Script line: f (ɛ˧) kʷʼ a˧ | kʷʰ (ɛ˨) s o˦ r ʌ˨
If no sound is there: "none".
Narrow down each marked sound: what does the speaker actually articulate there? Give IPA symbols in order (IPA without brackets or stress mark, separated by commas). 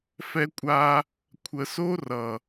ɛ˧, ə˨